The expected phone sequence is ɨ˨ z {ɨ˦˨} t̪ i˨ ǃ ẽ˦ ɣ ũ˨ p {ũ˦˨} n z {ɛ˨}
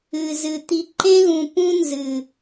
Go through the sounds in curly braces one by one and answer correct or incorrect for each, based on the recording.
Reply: incorrect: ɨ˨, incorrect: ũ˦, incorrect: ɨ˨

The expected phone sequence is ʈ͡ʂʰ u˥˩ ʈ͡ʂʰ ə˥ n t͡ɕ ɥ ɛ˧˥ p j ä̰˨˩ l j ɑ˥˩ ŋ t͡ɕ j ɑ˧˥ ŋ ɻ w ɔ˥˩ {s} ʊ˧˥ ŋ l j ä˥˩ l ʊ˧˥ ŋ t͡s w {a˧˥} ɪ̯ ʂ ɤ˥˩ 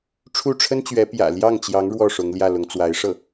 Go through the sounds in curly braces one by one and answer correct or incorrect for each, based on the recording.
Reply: incorrect: ʂ, correct

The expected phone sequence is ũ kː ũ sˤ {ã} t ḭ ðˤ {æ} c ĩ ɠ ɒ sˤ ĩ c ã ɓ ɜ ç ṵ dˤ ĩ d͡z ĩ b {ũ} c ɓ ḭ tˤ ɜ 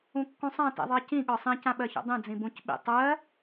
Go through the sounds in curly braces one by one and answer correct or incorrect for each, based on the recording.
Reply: correct, incorrect: ɜ, correct

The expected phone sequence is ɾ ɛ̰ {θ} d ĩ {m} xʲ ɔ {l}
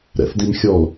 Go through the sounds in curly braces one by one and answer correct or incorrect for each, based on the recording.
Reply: correct, correct, correct

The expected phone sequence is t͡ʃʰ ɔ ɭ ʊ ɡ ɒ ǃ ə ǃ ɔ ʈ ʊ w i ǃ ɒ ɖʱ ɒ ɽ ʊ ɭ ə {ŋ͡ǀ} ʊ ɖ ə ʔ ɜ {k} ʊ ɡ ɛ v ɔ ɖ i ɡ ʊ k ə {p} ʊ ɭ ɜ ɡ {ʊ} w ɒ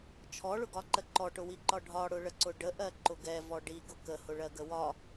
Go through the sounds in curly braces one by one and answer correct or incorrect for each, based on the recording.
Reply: incorrect: ǀ, incorrect: ǃ, incorrect: h, incorrect: ə

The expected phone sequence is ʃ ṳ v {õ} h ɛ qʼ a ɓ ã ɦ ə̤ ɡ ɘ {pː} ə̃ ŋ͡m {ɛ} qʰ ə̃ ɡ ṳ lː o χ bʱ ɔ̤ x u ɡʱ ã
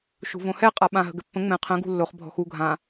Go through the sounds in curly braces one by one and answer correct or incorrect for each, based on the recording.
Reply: correct, correct, incorrect: ɛ̃

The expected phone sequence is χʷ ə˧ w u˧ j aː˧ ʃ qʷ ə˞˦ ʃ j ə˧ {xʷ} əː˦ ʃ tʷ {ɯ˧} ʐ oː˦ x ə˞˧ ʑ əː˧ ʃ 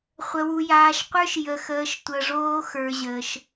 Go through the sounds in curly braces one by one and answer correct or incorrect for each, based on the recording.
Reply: incorrect: x, incorrect: ə˧

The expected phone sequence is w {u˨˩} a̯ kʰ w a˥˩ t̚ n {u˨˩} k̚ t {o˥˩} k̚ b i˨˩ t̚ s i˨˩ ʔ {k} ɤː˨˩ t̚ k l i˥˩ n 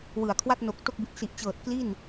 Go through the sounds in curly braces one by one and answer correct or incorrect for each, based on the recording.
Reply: incorrect: ɯ˨˩, incorrect: o˨˩, correct, incorrect: t͡ɕ

